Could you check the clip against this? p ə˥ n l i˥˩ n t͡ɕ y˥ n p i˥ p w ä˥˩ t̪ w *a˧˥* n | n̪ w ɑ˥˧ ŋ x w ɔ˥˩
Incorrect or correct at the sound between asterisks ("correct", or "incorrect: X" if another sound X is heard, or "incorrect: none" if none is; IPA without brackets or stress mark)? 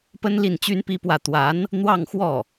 correct